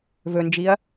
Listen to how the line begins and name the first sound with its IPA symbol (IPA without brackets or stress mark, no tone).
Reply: v